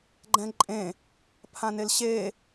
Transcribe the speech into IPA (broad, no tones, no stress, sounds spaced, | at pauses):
ɡ͡ǃ ɛ̃ ǃʼ ẽ | pʰ ã n e l ɕ e